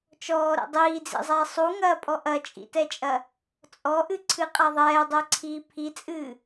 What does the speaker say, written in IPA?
t͡ʃɔːɾɛ̰ dˤiːd͡zḭzˤɛː sˤuŋɐːpʼɔ ʔɐt͡ʃʼḭtɛt͡ʃʼɐ | t͡sʼɔʔɨǀʰɨqʼa ðˤɛːdˤɛǀʰiː pʰit͡sʼɨː

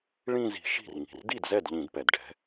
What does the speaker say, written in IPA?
ɭĩ˥˧zi̤˧˩˧ʃi̤˥˩r ŋi̤˩rdi˥˩dzɛ˥˩d ʎĩ˧˩˧dpɛ˩dɖʱɛ̤˨˦

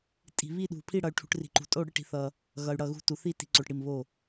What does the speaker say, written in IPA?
tʼi̤˨βi˦˨ɗṳ˨ pʰi˦˨ɽʌ˨y̯ʈʰṳ˨ʈ ri̤˨ǃṳ˨tʼo˦˨ ɽɨ˦˨ʈi̤˨θʌ˨ | ɣʌ˨y̯ɽʌ˦˨ɣṳ˦˨ tu˨θi˦˨ti̤˨ǀo˨ʈ ɽi˦˨mβo˦˨

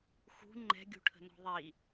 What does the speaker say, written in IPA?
xṳ ŋ͡ǃɛ̤ɡʲṳʈʰə̤nɔ̤ ðˤi

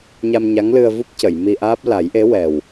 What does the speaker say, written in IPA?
ɲa˧mɲa˧˥ŋlɨ˧ə̯vu˦˥p̚ cə˨˩˨jmi˧ʔaː˦˥p̚ la˨˩˦jʔe˧˥wɛ˨˩w

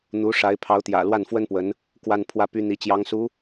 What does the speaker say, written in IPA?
n̪u˧˥ ʂa˧˥ɪ̯pʰɑ˧˥ʊ̯t̪jä̰˨˩ lwa˥˩nfwə˥npwə˧˥n | kwa˥n pʰwä˥˩py˥n̪i˧˥ t͡ɕjɑ˧˥ŋsu˧˥

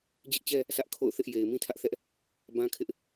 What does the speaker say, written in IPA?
d͡ʑɪ˦ʔt͡ɕɛ˦ | sä˦ʔkʰo̰˦˨ʊ̯θɪ˦ʔ je˨ɪ̯mĩ˦tʰä˦ʔθɛ˦ʔ | bã˦kʰɪ˦ʔ

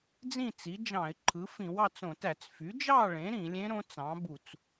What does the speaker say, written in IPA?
d͡zĩ˥˨t͡si˩˥d͡ʒɑ̃˧˩˧ɪ̯ ǃʰɯ˩˥fĩ˧˩˧wɑ˥˨t͡sõ˧˩˧ tæ˧˩˧t͡s fy˩˥d͡ʒɑ˥˨ɭẽ˩˥ ɾĩ˧˩˧lʲẽ˧˥ ɾõ˧˥t͡sɑ̃˩˥bu˧˩˧t͡s

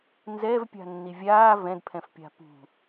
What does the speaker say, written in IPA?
nzɛːvpʲa̤nːi vʲaː vɛ̃dpʰɛ̃fpʲa̤ pṳ

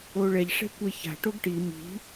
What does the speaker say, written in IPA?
oɭɛʎʂɛ̤ kʷeça̤ ʈoɡʈi mi̤

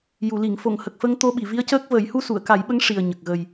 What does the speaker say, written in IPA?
ju˨˩˨li˨˩˨ŋ fo˨˩˨ŋhə˨˩k̚ fə˧ŋ t̪o˧ɓi˨˩˨ vi˧˥ə̯cəː˦˥k̚ və˨˩˦j hu˧su˨˩˨ə̯ka˨˩˦jɓə˧˥ŋ ʂi˨˩ə̯ ɲə˨˩k̚ɣə˨˩j

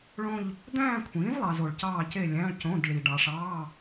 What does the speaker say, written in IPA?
ɭõ˥˧ʎ | d̪æ̃ː˥˧kʷʰĩː˩˥zlˠɑ˨z o˨ɭcɑː˥˧ce˥˧ lʲæ̃˧˥˧ɭcõ˧˥˧dɭi˨ ɖɑ˨ʂɑː˧˥˧

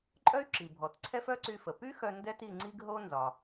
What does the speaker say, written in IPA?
ǃʼœ˥y̯ ǁi˩bʱɔ˩t ǀʰɛ˥fœ˥ǀy˧fə˩ py˥xœ˧ ndɛ˥ti˧ ŋ͡ǀi˥ɡɦo˥ nzɒ˩

